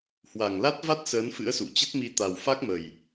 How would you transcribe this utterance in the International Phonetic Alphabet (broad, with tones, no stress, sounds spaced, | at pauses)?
h w a˨˩ ŋ l a˦˥ t̚ v a˦˥ t̚ s əː˨˦ n f ɨ̰˧˥ ə̯ s ṵ˧˨ t͡ɕ ə˦˥ t̚ m i˧ t̪ a˨˩ w f a˦˥ k̚ m ə˨˩ j